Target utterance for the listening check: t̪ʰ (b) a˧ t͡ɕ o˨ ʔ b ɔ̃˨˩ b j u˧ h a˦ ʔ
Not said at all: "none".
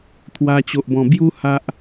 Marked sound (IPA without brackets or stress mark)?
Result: w